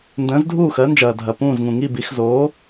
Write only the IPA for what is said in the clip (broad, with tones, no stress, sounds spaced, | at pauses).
n d ə̃ː˩˥ z dʱ uː˥˩ x ɜ˩˥ n d͡ʒ ɐː˩ dʱ ɐ˩ p ũː˥˩ z ŋ ũ˩ ŋ i˥˩ b i˩˥ x z oː˩˥